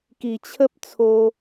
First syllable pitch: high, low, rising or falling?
low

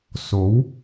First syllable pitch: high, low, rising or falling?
rising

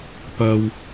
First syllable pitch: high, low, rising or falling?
low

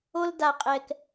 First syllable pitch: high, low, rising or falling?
high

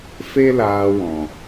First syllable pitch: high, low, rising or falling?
high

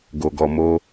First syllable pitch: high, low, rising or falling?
low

